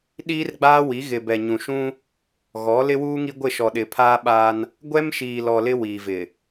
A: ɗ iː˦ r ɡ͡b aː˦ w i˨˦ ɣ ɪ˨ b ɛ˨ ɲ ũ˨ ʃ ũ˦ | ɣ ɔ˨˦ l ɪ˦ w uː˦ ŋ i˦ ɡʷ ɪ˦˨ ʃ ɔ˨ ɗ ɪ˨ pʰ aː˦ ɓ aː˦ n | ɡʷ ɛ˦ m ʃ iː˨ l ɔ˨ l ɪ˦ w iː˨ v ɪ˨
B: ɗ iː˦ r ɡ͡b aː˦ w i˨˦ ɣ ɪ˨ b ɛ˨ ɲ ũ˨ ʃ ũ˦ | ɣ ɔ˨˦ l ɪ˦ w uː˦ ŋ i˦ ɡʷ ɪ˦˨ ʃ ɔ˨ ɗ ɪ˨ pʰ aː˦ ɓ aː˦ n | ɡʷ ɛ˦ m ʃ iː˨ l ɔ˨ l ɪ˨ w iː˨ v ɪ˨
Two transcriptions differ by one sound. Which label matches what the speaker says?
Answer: A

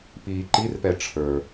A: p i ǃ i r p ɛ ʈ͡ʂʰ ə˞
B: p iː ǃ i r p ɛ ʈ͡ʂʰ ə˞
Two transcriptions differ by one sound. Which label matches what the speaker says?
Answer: B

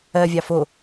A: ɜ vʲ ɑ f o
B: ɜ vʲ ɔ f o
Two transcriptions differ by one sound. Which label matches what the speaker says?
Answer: A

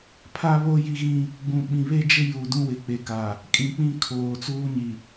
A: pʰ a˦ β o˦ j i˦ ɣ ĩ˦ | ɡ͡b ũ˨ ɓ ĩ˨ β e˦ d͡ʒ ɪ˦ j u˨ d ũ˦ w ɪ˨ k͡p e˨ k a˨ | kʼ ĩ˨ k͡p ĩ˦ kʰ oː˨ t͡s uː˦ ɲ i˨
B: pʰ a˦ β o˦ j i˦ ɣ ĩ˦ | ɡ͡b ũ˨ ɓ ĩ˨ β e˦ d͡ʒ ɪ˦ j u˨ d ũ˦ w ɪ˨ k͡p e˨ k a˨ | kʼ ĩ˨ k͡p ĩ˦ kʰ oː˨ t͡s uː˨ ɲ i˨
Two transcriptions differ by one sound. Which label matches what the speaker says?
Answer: A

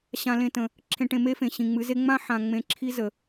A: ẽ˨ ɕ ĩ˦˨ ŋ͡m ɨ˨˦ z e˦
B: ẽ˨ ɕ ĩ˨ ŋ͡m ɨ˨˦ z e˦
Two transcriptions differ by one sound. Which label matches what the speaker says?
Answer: B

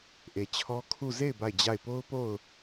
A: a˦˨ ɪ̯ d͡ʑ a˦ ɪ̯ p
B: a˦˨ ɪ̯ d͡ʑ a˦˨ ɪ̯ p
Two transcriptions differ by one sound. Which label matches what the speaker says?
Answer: B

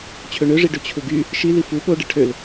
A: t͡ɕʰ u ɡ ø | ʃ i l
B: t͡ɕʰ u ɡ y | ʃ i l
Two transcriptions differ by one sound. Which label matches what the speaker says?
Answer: B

